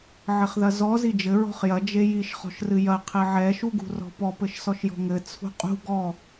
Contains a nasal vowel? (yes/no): no